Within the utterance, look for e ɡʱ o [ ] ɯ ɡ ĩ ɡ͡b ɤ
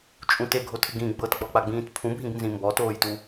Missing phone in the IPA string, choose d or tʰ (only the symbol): tʰ